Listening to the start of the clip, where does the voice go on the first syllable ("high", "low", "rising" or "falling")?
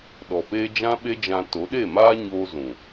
low